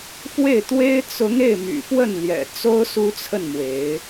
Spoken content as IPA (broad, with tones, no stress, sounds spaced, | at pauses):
f w e˥˩ ɪ̯ t̪ w e˥ ɪ̯ t͡s ʊ˧˥ ŋ e˥˩ ɪ̯ m y̰˨˩ f w ə˥˩ n l j ɛ̰˨˩ t͡s o˥ ʊ̯ s u˥ t͡sʰ ə˥˩ n m w e˧˥ ɪ̯